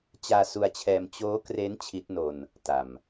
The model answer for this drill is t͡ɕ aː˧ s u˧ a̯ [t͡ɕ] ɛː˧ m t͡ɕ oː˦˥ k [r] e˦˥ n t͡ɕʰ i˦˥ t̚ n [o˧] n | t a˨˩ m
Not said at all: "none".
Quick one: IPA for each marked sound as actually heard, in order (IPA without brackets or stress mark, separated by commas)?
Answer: t͡ɕʰ, r, o˧